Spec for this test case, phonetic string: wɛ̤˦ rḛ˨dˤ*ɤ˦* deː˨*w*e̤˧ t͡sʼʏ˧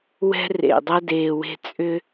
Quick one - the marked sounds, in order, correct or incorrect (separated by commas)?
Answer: incorrect, correct